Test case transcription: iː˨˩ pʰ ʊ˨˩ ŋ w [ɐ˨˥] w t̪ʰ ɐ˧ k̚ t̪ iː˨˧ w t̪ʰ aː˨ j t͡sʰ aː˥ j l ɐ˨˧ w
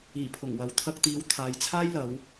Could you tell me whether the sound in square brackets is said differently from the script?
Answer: no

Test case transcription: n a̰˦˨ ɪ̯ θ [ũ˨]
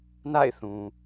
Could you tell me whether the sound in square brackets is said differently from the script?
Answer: no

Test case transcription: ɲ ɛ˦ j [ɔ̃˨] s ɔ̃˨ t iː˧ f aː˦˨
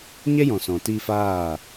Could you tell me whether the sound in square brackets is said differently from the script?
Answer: no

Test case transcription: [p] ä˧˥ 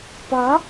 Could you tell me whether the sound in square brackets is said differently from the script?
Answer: no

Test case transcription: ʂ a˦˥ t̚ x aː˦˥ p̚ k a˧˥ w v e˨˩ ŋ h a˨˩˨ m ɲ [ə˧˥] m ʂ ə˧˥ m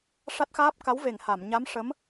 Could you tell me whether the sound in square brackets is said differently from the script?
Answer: yes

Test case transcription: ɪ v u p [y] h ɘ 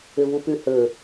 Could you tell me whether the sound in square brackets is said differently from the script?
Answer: no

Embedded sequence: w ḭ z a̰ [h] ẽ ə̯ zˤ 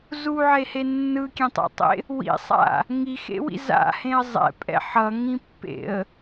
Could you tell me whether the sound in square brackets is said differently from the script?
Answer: no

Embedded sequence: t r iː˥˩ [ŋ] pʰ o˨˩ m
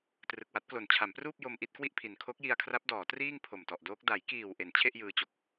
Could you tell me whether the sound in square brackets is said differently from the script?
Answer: no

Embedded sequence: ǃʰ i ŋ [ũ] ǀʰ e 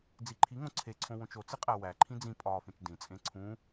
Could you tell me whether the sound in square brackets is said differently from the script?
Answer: yes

